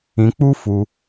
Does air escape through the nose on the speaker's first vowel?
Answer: yes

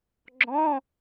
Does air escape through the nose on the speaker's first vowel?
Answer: yes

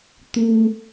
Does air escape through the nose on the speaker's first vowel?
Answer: no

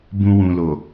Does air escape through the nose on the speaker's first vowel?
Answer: yes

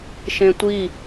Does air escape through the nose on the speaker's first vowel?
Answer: yes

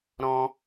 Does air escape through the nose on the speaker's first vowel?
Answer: yes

